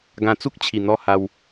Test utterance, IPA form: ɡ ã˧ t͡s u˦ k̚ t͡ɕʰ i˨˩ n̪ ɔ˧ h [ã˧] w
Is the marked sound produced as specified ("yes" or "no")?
no